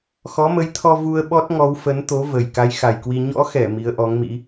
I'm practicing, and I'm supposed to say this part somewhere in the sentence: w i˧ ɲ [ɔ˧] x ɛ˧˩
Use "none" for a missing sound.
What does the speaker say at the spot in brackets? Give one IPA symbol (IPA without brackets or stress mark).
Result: ɔ̰˧˥